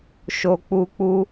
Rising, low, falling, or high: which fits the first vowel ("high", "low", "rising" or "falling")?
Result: low